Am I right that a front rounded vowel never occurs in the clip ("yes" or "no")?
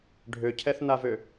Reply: no